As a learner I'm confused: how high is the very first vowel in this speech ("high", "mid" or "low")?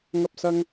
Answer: low